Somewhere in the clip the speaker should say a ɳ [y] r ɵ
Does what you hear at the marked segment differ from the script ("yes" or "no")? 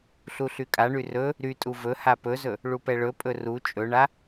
no